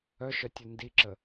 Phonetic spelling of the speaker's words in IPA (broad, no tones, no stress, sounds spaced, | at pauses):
œ ʃ œ tʲ u n d i ǁ ə